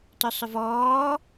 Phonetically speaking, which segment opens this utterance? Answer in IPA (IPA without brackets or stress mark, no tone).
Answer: t